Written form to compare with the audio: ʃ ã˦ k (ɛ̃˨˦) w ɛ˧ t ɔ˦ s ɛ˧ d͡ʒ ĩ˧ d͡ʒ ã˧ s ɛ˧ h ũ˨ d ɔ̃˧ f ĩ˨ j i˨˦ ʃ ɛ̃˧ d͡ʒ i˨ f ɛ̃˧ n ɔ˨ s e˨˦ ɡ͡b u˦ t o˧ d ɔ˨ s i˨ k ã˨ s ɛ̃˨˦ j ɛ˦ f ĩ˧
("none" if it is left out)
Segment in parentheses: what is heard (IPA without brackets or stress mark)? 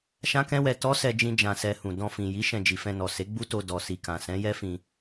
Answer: ɛ̃˦